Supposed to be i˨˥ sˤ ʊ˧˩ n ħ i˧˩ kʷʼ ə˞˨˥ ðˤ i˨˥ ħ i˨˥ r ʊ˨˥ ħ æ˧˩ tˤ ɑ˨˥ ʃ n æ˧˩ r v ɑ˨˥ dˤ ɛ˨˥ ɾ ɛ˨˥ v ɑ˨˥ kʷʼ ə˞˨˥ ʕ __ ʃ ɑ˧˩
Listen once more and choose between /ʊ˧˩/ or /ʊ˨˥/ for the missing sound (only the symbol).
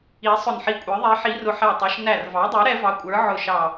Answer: ʊ˧˩